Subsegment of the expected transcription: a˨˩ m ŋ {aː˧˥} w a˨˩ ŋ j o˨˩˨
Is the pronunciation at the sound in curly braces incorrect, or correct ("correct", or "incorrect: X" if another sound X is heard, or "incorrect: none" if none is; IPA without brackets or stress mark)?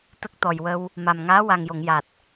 correct